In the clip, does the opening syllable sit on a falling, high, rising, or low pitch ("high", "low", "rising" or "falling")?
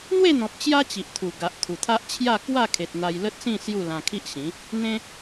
falling